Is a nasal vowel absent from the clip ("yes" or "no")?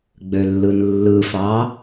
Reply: yes